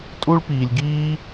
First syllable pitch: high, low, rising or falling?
high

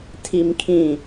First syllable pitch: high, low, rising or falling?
low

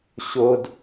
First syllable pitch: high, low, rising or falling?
high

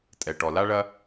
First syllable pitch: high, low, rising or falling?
low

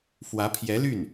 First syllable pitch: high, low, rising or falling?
rising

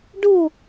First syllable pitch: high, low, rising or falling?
falling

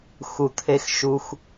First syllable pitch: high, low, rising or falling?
low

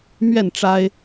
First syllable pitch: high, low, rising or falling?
falling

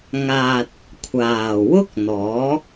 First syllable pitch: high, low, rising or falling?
low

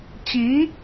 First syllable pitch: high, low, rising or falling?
rising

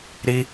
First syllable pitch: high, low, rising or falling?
high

